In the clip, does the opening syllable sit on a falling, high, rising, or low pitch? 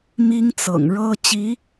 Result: high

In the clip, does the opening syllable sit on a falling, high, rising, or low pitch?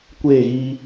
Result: falling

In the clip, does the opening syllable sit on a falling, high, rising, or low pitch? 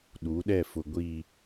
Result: rising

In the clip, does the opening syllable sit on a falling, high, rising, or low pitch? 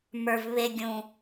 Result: low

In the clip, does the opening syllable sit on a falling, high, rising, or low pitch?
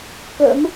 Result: rising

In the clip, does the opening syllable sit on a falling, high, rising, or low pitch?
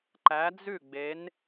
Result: rising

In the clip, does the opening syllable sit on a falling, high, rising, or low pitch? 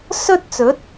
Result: high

